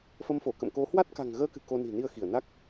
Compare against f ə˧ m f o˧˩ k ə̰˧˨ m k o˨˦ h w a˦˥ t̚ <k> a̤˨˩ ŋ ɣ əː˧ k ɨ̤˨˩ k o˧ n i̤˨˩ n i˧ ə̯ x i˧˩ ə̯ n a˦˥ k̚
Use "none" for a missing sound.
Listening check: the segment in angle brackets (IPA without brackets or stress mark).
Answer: k